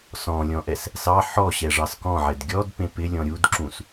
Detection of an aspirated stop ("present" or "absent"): absent